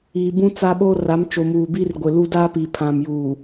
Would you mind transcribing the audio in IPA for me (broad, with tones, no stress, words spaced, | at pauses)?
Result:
iː˨bũ˦t͡sa˦ ɓo˦ra˨˦mt͡ʃo˨muː˨ bi˦rɡʷɪ˨lu˦ da˦pi˨pʰã˨m juː˨